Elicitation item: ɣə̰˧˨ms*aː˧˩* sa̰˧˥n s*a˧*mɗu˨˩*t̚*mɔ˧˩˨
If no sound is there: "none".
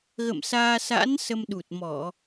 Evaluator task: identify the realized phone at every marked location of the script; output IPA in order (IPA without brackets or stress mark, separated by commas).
aː˧, ə˧, t̚